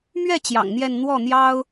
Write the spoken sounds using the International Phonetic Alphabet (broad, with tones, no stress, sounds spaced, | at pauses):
m ɥ ɛ˥˩ t͡ɕ j ɑ̰˨˩ ŋ n̪ j ɛ˥˧ n n̪ w ɔ˥˩ n̪ j ɑ˥ ʊ̯